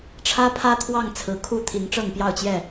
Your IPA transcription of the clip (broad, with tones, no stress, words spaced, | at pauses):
ʈ͡ʂʰä˦pʰä˦ t̪ʰwɑ˥˨ŋt͡sʰɹ̩˨˩kʰu˥˨ t̪ʰi˨˦ŋʈ͡ʂɤ˥˨ŋpjɑ˥˨ʊ̯t͡ɕjɛ˥˨